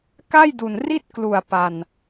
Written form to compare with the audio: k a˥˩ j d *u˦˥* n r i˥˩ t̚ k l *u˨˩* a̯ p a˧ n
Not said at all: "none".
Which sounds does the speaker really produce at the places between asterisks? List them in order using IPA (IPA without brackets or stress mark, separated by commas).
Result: u˨˩, u˨˩